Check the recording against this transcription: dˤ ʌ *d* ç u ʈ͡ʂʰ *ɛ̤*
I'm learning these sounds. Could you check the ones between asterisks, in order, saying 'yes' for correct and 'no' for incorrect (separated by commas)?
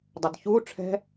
yes, yes